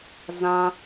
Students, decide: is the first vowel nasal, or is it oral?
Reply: nasal